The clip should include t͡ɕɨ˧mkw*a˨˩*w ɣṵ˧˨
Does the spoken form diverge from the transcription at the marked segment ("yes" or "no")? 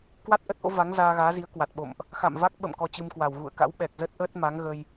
no